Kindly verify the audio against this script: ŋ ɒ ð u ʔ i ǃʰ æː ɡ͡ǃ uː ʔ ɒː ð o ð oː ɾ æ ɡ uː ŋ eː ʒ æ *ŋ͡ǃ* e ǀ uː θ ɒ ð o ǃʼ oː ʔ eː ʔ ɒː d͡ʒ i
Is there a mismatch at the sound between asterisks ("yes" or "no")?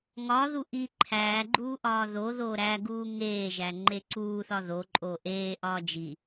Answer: no